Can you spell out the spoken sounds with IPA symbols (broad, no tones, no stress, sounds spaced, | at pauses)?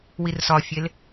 w i r s ɒ fʲ e l